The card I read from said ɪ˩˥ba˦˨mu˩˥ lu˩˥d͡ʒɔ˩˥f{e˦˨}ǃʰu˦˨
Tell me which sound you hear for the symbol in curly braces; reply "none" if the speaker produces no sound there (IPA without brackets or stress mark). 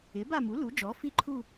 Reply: i˦˨